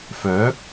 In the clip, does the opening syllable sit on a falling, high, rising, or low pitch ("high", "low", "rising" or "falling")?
rising